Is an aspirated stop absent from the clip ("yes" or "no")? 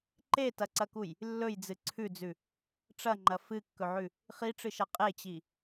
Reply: no